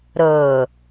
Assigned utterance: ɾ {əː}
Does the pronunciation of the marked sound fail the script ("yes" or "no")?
no